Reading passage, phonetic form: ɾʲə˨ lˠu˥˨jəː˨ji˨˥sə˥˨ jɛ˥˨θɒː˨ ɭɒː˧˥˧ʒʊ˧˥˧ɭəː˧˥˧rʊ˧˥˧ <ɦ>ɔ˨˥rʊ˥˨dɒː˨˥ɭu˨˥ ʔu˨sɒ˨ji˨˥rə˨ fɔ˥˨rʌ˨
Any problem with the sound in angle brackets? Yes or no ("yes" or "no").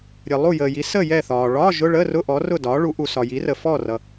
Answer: yes